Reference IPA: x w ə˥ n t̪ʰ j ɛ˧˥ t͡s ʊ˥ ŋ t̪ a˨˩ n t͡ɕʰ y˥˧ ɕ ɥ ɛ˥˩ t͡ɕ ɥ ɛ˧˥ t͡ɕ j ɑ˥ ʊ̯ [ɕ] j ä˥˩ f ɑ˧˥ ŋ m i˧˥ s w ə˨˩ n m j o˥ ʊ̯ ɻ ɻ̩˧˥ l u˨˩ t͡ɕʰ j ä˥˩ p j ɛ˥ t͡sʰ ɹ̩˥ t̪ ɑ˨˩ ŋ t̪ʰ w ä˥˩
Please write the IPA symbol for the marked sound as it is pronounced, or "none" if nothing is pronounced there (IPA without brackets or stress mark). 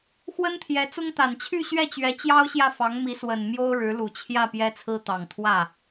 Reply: ɕ